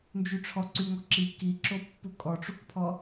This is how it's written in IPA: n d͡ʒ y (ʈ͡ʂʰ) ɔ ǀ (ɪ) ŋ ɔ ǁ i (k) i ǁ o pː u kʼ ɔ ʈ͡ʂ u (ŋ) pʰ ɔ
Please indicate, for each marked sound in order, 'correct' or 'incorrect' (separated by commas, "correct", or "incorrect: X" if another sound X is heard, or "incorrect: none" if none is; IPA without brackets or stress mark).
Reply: correct, incorrect: y, correct, incorrect: k